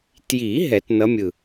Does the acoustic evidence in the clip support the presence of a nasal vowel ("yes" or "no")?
no